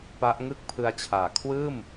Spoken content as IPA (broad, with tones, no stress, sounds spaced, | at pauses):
p a˦˥ ʔ ŋ ɯ˥˩ k̚ pʰ ɯ˧ a̯ t͡ɕʰ aː˨˩ kʰ w ɯː˥˩ m